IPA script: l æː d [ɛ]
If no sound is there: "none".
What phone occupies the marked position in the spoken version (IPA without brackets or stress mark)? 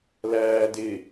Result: ɪ